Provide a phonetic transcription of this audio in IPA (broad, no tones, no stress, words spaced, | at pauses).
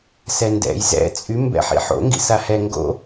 sɛndɛ̰j zɛ̰ t͡sʼy mbɛ̰ħḭħo̰ ŋɡḭsahɛ ŋɡo̰